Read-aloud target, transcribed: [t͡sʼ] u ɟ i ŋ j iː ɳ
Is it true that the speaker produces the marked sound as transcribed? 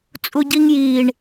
yes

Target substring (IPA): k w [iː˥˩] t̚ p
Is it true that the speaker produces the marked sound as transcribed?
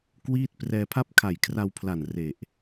yes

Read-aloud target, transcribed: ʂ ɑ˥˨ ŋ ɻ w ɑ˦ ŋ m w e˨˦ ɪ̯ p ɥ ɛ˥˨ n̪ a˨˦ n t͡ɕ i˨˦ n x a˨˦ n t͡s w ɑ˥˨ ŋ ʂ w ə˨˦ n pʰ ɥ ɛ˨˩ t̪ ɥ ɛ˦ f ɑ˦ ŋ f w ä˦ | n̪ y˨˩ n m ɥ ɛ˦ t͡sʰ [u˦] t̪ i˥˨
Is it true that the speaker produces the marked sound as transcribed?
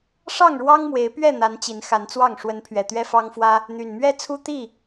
yes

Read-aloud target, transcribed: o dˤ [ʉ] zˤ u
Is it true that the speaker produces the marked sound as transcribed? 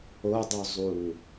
yes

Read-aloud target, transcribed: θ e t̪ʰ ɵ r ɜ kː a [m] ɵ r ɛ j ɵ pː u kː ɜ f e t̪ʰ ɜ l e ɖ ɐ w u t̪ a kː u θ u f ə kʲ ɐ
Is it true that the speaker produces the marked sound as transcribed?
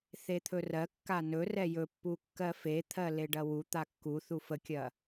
no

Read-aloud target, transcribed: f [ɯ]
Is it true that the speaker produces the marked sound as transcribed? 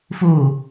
no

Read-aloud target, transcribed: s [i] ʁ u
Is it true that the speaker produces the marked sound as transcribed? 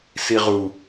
yes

